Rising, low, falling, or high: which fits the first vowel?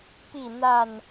falling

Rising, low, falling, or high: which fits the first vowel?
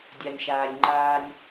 low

